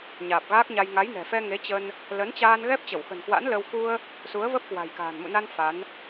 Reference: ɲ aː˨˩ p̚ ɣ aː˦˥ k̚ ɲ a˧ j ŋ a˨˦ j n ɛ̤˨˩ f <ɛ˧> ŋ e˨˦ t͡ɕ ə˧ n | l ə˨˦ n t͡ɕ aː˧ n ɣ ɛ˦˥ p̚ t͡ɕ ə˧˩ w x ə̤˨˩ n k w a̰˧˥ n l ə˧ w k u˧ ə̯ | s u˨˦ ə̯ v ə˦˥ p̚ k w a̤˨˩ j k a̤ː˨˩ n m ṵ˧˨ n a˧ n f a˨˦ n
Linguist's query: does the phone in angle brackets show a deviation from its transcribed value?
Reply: no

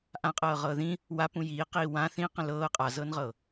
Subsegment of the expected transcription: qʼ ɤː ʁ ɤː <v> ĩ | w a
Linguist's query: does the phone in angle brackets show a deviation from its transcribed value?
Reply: yes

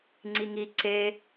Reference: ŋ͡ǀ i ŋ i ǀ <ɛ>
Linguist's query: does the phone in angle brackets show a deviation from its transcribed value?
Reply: yes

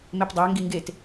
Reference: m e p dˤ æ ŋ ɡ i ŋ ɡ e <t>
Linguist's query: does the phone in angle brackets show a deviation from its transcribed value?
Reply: no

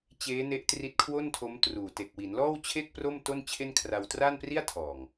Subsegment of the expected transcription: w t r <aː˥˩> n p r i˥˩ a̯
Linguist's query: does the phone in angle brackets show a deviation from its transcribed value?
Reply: no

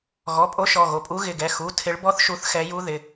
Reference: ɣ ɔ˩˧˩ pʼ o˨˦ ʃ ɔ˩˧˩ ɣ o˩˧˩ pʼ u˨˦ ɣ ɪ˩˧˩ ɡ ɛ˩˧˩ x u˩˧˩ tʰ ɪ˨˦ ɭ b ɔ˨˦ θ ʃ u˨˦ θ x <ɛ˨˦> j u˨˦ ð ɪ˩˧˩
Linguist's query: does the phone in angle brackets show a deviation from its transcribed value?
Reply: no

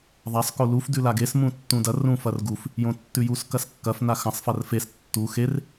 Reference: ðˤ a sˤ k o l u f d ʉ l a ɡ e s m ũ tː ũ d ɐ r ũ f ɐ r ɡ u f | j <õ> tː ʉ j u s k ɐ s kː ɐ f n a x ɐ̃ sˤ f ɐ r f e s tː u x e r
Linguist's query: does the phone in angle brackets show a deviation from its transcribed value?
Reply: no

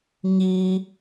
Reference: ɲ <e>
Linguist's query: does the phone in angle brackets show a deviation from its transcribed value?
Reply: yes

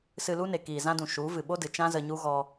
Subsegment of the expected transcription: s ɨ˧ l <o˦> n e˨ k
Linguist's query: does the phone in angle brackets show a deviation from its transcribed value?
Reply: yes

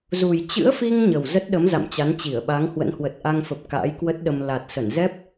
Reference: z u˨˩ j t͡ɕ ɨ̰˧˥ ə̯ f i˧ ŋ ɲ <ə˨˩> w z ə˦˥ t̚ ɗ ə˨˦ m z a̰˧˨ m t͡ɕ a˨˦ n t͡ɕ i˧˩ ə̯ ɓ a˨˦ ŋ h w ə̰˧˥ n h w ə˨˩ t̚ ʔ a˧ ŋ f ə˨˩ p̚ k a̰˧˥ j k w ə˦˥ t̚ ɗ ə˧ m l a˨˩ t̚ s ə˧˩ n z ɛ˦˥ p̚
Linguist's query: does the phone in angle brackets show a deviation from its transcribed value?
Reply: no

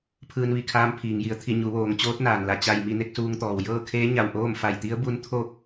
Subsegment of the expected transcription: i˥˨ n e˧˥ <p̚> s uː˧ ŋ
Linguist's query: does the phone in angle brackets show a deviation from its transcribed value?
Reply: yes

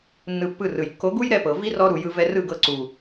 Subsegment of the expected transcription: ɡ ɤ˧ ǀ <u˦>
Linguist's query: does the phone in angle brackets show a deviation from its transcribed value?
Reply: yes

